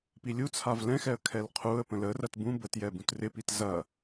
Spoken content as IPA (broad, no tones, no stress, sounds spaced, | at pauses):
p i lʲ u t͡sʰ a v l ɛ̃ x ɛ ə̯ kʰ ɛ l qʰ u ə̯ p ə̃ l ə r ɐ t b ũ b ə t j ɛ b ũ t r ɪ p i t z ɐ